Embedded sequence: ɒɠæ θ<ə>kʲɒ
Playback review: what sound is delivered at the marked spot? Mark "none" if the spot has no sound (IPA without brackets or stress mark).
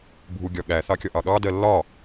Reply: ɑ